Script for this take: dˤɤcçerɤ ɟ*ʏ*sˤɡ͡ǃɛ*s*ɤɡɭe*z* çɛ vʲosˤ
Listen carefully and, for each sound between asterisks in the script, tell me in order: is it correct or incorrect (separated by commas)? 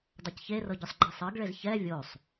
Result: correct, incorrect, correct